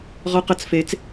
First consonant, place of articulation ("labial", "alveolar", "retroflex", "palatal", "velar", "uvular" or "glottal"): uvular